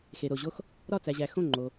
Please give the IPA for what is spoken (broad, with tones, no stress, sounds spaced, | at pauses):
x e˩ ɾ o˩ ʑ o˧˩ x | ɾ ɒ˧˩ t͡s æ˩ ʑ æ˩ x õ˧˩ ŋ͡ǃ o˩